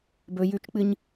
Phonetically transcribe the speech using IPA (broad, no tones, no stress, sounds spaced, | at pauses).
b ɵ j ʉ t͡ʃ k͡p ɨ ɲ